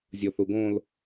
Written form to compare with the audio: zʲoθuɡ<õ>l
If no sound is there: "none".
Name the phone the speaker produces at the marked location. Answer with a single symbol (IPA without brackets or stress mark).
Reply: õ